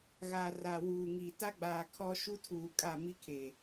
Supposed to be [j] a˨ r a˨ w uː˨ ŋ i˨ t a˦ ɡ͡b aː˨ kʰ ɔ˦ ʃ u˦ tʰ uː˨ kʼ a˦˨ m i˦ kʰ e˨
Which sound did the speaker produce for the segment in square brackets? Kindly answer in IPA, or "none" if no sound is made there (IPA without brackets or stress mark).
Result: ɣ